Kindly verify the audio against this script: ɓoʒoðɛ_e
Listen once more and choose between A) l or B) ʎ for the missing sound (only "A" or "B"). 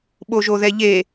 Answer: B